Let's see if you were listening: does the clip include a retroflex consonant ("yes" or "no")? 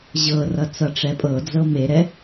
yes